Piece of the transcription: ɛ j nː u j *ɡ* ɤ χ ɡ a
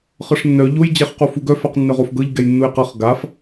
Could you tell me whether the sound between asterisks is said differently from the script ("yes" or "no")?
yes